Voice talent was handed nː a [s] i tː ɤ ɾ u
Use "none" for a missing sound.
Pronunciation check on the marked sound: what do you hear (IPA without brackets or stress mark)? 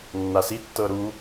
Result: s